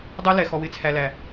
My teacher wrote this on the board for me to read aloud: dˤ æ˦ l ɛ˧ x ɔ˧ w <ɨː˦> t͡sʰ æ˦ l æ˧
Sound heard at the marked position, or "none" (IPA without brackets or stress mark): ɪː˦